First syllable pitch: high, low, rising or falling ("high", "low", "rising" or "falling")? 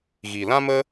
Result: low